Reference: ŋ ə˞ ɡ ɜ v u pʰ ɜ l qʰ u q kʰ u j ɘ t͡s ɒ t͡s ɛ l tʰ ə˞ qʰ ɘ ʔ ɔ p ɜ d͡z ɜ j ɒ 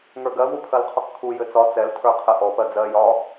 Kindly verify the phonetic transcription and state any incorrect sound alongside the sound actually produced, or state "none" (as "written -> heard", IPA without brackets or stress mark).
none